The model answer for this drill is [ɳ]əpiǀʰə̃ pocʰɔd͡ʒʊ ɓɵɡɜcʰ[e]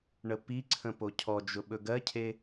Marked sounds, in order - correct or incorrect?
correct, correct

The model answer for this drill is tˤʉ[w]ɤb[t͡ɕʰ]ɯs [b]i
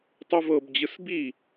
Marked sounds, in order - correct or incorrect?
incorrect, incorrect, correct

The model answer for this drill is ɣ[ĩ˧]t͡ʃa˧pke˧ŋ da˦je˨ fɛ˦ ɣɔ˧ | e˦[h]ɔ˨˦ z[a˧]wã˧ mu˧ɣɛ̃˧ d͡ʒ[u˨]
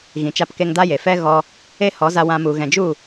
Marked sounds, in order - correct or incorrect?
incorrect, correct, correct, incorrect

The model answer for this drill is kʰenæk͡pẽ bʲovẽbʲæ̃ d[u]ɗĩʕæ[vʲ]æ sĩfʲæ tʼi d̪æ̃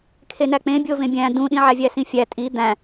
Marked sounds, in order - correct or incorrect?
incorrect, correct

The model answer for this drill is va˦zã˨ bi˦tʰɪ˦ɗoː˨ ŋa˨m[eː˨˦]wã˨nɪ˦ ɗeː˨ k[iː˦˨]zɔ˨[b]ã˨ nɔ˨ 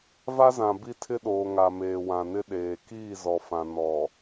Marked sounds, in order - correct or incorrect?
incorrect, correct, incorrect

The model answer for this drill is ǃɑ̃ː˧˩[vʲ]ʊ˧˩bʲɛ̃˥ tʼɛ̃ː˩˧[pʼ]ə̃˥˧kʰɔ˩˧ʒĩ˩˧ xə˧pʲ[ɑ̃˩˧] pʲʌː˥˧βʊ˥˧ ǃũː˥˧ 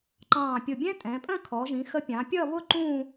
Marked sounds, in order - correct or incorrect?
incorrect, correct, correct

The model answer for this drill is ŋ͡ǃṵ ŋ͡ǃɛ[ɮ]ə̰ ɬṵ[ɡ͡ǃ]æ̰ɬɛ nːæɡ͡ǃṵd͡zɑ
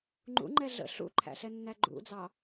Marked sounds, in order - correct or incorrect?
correct, incorrect

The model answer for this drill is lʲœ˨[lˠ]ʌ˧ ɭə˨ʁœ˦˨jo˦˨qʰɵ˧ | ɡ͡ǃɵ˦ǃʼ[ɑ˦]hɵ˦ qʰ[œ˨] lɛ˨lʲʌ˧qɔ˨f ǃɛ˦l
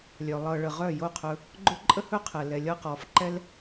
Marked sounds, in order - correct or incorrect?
correct, incorrect, incorrect

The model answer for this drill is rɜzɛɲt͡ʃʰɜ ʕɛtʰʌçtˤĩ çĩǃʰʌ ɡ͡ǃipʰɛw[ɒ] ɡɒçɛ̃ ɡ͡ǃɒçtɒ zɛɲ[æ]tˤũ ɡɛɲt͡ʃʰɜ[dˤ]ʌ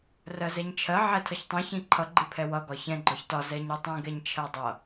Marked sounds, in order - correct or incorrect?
incorrect, incorrect, correct

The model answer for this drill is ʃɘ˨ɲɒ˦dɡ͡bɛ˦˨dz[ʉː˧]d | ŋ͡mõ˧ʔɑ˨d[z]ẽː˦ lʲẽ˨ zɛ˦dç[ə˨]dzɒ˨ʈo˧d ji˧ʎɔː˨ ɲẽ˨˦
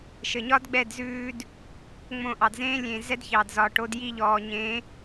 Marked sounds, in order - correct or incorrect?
correct, correct, incorrect

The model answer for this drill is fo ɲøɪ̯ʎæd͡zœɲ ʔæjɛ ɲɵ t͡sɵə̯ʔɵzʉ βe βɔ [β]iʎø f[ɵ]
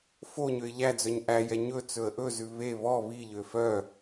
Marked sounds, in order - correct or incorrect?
correct, incorrect

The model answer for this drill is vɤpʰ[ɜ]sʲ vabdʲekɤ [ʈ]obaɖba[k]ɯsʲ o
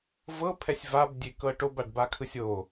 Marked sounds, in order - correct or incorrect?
incorrect, correct, incorrect

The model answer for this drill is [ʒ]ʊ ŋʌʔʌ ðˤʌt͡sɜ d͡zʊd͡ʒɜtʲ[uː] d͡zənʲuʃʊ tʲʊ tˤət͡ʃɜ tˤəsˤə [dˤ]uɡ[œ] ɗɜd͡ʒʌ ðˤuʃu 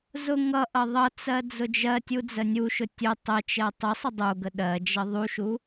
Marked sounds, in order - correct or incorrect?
incorrect, incorrect, correct, incorrect

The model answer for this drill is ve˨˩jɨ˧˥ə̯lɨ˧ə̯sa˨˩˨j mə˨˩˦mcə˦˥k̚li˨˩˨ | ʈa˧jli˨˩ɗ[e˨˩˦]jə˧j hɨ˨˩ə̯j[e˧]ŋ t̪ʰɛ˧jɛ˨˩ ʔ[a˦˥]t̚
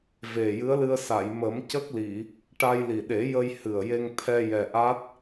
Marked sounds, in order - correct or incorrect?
correct, correct, correct

